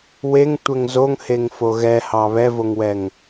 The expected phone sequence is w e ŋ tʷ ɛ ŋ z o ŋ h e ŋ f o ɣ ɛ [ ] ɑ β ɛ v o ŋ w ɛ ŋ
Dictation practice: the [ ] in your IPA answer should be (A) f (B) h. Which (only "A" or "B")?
B